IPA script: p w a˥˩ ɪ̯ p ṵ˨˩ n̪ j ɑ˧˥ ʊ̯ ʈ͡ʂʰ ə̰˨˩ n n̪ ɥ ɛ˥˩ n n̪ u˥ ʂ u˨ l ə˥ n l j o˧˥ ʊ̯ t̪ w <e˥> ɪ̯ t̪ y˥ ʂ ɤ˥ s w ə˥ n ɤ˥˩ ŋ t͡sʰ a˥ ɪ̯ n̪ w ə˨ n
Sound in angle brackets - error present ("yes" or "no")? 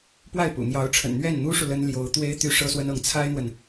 no